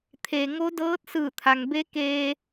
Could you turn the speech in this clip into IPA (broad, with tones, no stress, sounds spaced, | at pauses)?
t̪ʰ e˩ ŋ o˧˥ d ɤː˧˥ t̚ s ɯː˧˩ t̪ʰ a˩ ŋ b e˧˥ k eː˧